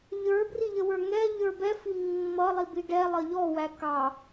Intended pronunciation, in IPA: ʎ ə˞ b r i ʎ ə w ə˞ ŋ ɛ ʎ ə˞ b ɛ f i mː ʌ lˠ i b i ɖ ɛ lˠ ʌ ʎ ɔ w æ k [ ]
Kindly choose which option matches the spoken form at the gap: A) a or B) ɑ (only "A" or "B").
B